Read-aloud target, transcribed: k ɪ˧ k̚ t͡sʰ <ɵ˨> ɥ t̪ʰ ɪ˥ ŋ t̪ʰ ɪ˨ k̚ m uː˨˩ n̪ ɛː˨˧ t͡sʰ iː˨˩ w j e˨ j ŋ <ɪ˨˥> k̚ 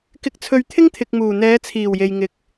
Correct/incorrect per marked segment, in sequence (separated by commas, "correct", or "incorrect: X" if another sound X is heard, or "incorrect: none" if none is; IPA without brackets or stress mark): incorrect: ɵ˧, incorrect: ɪ˨